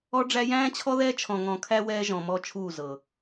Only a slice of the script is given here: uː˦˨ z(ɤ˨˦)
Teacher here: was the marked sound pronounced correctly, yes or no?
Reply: no